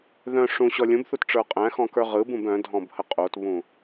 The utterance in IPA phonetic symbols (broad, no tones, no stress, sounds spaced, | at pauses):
ð œ̃ ʂ ũ ɕ ɔ lʲ ũ b θ u t ʈ͡ʂ ə˞ qʼ æ̃ x ɔ̃ k ə˞ ʁ ɯ b ũ b œ̃ dʱ ɔ̃ b h ə qʼ o t β ũ